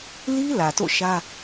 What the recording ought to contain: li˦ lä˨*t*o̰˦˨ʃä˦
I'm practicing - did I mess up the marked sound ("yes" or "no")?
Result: no